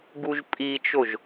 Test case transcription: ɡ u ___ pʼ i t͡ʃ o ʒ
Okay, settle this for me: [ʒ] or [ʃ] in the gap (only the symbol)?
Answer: ʒ